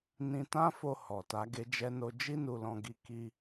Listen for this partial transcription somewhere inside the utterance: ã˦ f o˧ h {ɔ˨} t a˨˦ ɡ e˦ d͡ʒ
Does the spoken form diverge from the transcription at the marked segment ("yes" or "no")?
no